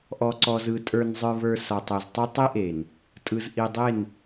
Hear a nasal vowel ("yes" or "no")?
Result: no